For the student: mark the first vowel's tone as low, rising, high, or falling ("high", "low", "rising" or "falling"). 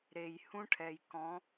low